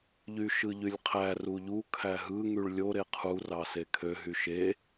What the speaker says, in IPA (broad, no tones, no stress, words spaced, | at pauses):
ʎyʃɯʎylʲqʰæ ruʎu kʰæɦɯ ŋyɭlʲo ɾeqʰu rɑsekʰø ɦyʃe